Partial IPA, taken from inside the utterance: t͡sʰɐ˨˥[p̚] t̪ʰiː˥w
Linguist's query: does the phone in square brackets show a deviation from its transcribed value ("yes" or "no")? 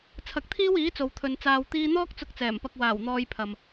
yes